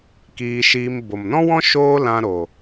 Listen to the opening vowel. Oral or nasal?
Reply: oral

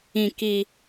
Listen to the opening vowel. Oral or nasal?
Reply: nasal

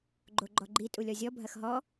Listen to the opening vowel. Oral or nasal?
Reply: oral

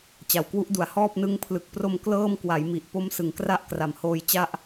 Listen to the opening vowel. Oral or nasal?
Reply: oral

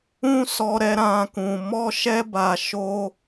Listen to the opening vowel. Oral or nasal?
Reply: nasal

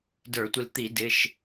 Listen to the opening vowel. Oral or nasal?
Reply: oral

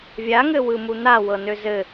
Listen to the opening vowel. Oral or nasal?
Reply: oral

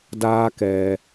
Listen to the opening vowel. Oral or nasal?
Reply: oral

